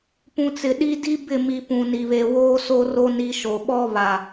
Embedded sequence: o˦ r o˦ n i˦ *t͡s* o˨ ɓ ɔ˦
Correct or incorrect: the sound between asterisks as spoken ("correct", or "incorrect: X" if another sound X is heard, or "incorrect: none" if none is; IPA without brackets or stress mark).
incorrect: ʃ